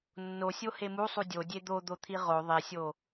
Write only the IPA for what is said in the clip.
nː o sʲ o h e m u sˤ u dʲ o dʲ e d̪ o d̪ o t̪ʰ i ʁ o ðˤ i sʲ o

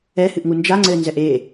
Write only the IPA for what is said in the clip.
ɛ h ɨ ʔ ŋ u n d͡ʒ a ŋ͡ǀ ɘː n z ɛ ʔ e

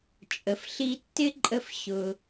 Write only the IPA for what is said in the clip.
t͡ʃʼ ə˩ f ɬ i˧ tː ɪ˥ ǃʼ ə˧ f ɕ ʊ˩

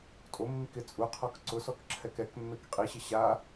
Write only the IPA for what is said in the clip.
tʼ o mː i k ɪ t͡sʼ u qʰ ɔ k ǀ ʊ s ɔ k ǁʰ ɛ k ɛ k mː e k qʼ i ɕ ɪ ɕ a

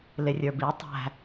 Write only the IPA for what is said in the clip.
l ɪ rʲ ə˞ b i tˤ æ̤

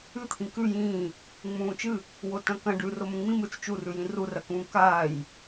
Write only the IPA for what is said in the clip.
ɨ t̪ʰ ĩ k ʉ j ĩː | ŋ͡m ũː t͡ʃ ɨ | w o t ɐ̃ k ɐ̃ ɖ ʉ r o m ũ ŋ͡m ĩ m ɨ t͡s t͡ʃ u r ʉ j ĩ r u r ɐ k ũː k aː j

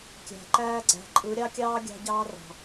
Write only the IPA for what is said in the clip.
kʲ æ̤˨ ǃ æː˦ ɡ͡ǀ æ̤˧ ǃʼ ɯ˨˦ ɾʲ ɑ˦ kʲ ɑː˦ ɡʲ ɑ̤˦ ɟ ɑː˦ r ɑ̤˨

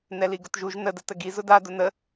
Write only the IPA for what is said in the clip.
n ɛ l i ɡ ʊ t ʒ u ʒ n ə d ə t ə ɡ i z ʊ d a d ʊ n ə

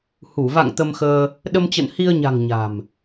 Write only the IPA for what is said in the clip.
h u˧˩ v a̰˧˨ ŋ t̪ ə˧ m x əː˧ | ɗ ə˧ m t͡ɕ ə̰˧˨ n h i˧ ə̯ ɲ a̤˨˩ ŋ ɲ a̤˨˩ m

